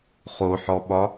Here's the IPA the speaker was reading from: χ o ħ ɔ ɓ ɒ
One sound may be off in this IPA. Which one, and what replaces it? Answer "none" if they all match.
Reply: none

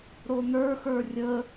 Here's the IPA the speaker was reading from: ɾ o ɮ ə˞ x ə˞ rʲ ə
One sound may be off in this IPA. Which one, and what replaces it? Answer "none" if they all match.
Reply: ɮ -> n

